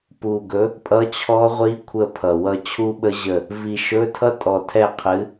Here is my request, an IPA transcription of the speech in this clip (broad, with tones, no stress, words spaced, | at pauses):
pu˨˩ɡɵ˨˥ | pʼʌ˧˥˧t͡ɕʰɔ˦˥ʁʷi˦˥kʷʰə˦˨ pʰʌ˨˩wʌ˦˨ t͡ɕʰu˦˥ɓə˦˥ʑə˦˨ | vi˨˩ʃɵ˧˥˧ tʰʌ˦˥tʼɔ˨˩tʰɛ˦˨ qʰɨ˨˥